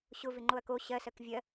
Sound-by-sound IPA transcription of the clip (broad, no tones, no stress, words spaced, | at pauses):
ɕʊ vɪŋ͡ǃoɐ̯ko ɕɜsɜk vʲɜ